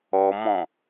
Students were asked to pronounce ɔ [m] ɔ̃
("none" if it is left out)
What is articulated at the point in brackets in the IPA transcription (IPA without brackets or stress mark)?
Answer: m